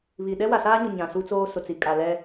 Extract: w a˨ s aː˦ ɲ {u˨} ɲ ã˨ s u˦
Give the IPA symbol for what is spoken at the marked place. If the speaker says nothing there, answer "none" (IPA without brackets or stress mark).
ʊ˨